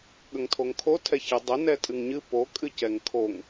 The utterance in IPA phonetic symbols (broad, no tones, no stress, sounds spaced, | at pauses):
ɠ ə ŋ tʰ o ŋ kʰ o tʰ ɛ ç ɨ dˤ ə n ɛ tʼ ɨ ŋ ɲ ɨ p o kʼ ɨ c ɛ ŋ kʰ o ŋ